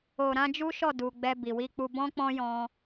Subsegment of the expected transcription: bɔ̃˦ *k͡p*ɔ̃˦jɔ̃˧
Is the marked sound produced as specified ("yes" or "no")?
yes